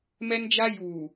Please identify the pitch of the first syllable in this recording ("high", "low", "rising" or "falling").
high